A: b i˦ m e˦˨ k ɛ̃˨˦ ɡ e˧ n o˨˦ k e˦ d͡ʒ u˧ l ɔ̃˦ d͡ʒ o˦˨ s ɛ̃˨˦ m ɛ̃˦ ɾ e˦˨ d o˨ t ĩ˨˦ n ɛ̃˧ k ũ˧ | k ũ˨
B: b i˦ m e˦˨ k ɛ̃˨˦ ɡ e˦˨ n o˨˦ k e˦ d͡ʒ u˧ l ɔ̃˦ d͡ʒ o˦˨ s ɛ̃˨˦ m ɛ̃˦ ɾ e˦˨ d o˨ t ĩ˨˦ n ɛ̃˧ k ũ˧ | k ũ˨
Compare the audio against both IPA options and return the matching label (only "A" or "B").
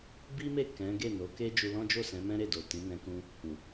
B